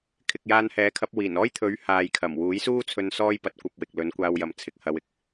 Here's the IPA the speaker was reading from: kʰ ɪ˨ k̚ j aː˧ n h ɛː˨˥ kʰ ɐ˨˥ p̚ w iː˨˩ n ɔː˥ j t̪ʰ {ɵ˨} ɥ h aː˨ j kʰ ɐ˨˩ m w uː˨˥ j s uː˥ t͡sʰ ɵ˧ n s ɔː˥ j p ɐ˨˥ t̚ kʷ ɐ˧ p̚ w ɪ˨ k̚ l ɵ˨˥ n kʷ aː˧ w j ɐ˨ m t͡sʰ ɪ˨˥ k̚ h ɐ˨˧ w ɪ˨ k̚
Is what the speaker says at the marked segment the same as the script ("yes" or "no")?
no